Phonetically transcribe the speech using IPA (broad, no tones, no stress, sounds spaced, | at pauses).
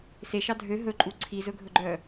s e ʃ ɑ dʱ ø ɦ ɵ ǃʼ u ǀʰ i z ɵ ɡʱ ɵ ɡ͡ǃ œ